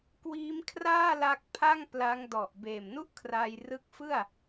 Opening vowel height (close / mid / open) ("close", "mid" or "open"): close